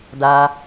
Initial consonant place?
alveolar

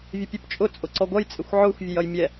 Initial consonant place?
labial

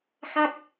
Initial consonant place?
velar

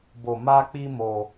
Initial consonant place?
labial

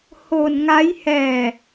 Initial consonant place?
glottal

